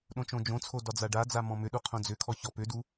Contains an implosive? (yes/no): yes